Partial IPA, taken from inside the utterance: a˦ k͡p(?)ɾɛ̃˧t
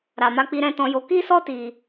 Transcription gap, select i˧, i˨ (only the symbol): i˧